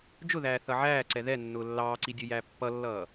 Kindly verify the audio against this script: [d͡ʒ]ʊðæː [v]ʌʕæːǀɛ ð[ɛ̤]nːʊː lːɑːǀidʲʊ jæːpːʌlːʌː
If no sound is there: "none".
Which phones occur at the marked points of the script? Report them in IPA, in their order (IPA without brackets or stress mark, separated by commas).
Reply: d͡ʒ, θ, ɛ